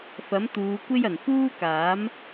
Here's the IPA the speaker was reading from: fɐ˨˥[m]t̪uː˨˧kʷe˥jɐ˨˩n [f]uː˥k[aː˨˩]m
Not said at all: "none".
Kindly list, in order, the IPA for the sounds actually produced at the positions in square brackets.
m, f, aː˨˥

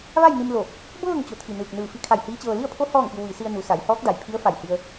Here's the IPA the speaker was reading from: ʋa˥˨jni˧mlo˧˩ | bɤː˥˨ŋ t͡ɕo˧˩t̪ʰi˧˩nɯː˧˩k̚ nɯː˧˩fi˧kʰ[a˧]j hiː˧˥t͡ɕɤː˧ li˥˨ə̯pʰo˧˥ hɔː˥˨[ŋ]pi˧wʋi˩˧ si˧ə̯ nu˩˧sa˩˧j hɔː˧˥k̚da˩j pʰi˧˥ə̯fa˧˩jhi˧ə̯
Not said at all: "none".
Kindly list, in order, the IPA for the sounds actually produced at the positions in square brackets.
a˧˩, ŋ

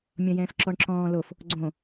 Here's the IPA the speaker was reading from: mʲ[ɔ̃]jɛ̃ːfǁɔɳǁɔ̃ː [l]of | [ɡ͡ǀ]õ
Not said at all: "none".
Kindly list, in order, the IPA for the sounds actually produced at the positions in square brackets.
ɔ̃, l, ɡ͡ǀ

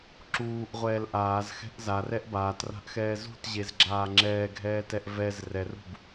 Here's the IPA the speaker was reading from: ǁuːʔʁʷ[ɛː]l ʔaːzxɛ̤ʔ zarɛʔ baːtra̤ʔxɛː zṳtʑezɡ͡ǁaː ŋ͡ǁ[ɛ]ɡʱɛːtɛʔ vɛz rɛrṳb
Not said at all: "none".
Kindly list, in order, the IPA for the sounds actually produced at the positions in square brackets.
ɛː, ɛː

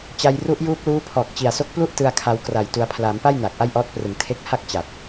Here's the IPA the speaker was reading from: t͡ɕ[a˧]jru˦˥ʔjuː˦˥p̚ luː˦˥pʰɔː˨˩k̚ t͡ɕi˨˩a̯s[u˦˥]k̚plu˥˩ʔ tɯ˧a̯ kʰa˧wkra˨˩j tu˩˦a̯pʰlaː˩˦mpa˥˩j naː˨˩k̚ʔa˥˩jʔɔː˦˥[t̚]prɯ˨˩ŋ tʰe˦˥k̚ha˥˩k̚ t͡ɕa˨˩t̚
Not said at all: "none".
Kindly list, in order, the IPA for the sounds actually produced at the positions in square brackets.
a˧, o˦˥, t̚

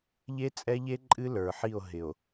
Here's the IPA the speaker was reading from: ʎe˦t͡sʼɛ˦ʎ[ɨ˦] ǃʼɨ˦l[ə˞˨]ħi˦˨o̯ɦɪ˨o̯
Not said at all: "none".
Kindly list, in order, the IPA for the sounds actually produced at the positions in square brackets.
e˦, ə˞˨

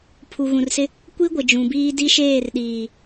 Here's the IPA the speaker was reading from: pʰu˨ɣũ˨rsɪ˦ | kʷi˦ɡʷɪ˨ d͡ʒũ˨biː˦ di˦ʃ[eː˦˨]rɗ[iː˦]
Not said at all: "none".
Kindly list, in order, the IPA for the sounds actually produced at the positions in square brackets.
eː˦˨, iː˨

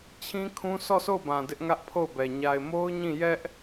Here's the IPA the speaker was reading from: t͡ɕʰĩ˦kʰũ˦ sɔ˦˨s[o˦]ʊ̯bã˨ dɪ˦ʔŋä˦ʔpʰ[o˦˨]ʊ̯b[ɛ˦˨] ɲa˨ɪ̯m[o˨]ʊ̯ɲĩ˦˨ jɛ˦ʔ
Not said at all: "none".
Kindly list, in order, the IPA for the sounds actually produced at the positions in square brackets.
o˦˨, o˦˨, ɛ˨, o˦

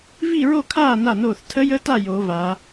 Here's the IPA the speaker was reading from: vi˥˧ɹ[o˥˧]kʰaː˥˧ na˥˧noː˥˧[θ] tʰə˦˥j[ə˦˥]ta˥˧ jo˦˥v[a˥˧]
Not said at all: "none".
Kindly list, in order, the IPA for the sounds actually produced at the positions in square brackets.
o˥˧, θ, ə˦˥, a˦˥

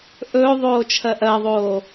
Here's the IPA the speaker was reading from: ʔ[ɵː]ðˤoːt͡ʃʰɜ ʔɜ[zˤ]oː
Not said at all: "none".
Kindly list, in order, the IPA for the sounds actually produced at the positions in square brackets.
ɵː, ðˤ

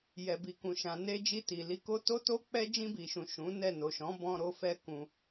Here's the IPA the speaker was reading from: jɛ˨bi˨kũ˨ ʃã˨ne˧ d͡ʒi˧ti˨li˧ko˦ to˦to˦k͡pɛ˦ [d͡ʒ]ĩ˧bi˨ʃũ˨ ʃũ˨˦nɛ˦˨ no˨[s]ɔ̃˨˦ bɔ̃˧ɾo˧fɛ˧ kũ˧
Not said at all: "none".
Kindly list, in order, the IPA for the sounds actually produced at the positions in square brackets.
d͡ʒ, ʃ

